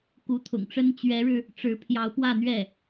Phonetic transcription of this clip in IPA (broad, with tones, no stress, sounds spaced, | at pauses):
k u˧˥ t̪ʰ ʊ̰˨˩ ŋ ʈ͡ʂ ə˥ n t͡ɕ ɥ ɛ˧˥ ɻ ɻ̩˧ | ʈ͡ʂ ɻ̩˧˥ pʰ j ɑ˧˥ ʊ̯ p w ä˥˧ n̪ ɥ ɛ˥˩